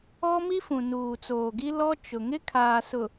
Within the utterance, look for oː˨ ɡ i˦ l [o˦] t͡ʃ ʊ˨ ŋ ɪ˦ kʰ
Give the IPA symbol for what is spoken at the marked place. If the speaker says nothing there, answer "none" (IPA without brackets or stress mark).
ɔ˦